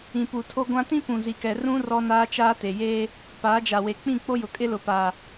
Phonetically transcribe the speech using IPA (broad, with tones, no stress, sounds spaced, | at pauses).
ĩ˨ p u˨ tʰ o˦ ɡʷ ã˦ t ĩ˦ p ũ˨ z i˨ k ɛ˨ r ũ˦ r ɔ˦ n aː˦ t͡ʃ aː˦ t e˨ j eː˦ | p aː˨˦ d͡ʒ a˨ w e˨ k͡p ĩ˦˨ k͡p o˦ j ʊ˨ kʼ ɪ˦ l ʊ˨ p a˨